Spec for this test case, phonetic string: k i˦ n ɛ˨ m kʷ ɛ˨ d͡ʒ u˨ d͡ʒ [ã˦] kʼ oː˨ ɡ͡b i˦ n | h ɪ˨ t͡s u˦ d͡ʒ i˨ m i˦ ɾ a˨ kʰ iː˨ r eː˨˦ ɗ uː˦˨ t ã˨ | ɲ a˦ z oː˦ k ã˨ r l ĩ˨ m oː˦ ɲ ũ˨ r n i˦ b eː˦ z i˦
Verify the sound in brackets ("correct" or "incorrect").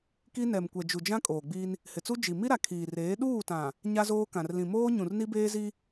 correct